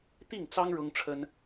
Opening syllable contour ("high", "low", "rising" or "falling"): falling